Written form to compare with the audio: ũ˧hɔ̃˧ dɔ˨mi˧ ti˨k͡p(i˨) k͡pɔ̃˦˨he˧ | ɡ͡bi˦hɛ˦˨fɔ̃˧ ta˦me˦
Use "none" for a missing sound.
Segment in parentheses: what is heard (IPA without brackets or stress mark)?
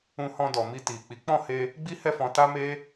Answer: i˨˦